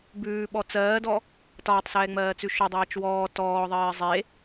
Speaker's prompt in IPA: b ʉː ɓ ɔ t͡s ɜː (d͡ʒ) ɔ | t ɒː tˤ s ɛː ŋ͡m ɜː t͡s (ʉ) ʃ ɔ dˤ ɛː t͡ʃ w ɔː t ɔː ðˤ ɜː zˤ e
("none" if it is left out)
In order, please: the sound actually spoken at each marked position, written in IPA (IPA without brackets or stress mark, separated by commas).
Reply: d, ʉ